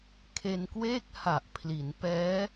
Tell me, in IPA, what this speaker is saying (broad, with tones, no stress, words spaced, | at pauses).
kʰe˧nkweː˥˩k̚ha˨˩ʔ pʰli˩˦n pɛː˦˥